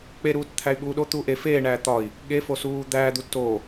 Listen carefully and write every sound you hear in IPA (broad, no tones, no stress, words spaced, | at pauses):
k͡peɾuːt t̪ʰæy̯ɠuːɗo t̪uːʔe feːɳæː t̪ɒi̯ | ɠefo suːd̪æːd̪u to